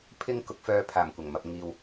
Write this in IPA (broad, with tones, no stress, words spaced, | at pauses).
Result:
pʰɪ˥ŋ kʊ˧k̚fœː˧ pʰaː˨˩mkʷɐ˨˩ŋmɐ˨p̚ ŋiː˨w